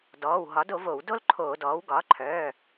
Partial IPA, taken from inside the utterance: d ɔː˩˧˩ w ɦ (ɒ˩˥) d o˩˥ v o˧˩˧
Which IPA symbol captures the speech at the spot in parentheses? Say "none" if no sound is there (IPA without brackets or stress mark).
ɒ˩˥